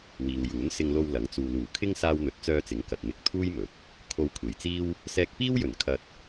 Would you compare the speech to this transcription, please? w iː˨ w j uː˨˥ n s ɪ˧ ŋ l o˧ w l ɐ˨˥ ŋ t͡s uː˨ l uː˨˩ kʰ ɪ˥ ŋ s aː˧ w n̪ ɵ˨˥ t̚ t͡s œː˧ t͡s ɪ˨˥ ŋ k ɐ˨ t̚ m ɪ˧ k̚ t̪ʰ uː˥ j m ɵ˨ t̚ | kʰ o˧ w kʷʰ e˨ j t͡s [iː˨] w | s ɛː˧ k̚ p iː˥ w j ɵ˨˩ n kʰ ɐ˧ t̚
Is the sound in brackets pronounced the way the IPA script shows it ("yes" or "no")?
no